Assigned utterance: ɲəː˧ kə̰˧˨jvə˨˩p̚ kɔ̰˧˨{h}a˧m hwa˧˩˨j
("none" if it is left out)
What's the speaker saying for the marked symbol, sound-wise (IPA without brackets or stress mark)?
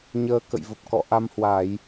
ʔ